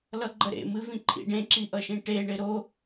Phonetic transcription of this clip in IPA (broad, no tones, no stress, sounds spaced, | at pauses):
l ʌ ɡ͡ǃ ə ɾ ḛ m ɨ v ĩ ǃʰ ḭ ɖ ẽ ǁ i ʔ ʌ ʃ ĩ ʈ e ɳ ɪ ɾ o